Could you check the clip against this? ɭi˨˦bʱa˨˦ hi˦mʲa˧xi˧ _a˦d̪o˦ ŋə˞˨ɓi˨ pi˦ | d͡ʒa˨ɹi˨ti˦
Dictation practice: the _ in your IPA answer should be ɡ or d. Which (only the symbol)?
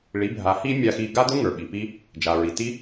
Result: ɡ